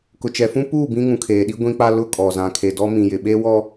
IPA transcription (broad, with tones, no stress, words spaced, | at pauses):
kʊ˨t͡ʃɛ˨fũ˦puː˦˨ bĩ˦ŋũ˨ kʰeː˨ɗi˦ ɡʷĩ˦k͡pa˦ lʊ˦ kʼɔ˨zã˨ kʰe˨dɔ˦ mĩ˨jɪ˨ ɓe˦wɔ˦